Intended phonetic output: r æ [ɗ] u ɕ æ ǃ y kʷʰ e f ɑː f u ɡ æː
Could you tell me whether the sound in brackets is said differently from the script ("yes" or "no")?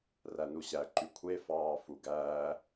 yes